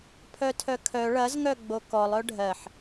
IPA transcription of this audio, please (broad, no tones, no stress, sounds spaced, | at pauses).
pʰ œ tʰ œ kʰ œ ɭ ɐ z ŋ œ ɡ͡b o k ɔ lˠ œ ɖʱ ɜ ħ